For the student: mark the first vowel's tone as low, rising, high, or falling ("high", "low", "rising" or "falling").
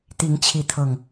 rising